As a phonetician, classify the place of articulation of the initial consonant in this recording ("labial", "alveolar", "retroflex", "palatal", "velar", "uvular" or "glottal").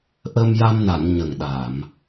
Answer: glottal